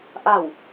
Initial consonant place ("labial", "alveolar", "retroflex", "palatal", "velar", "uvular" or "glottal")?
glottal